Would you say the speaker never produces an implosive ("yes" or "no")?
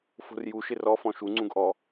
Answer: yes